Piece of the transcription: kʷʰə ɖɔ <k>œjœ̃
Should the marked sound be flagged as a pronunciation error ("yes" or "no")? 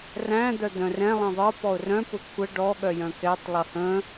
yes